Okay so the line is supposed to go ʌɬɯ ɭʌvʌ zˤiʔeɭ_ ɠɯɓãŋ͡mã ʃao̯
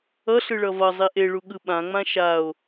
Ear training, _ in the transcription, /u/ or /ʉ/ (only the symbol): u